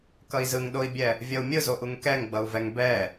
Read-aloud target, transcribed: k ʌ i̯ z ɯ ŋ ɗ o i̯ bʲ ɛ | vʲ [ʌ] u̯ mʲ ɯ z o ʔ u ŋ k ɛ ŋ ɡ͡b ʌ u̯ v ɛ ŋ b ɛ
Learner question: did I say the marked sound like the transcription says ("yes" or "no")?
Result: yes